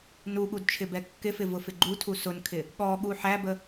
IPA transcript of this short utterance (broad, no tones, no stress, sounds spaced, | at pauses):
n u ɠ u d t͡ʃʰ ɪ b ɛ kː ɪ f ɪ v ʊ f ɪ ɡ͡ǃ u tʰ u s ʊ n kʰ ɪ | ɠ ɔ ɠ u ħ æ b ə